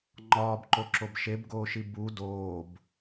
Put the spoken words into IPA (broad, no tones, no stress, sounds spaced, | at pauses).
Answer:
ŋ͡ǃ ɒː b ǃ o ǁ o b ʃ e b ɡ oː ʃ i b u d oː b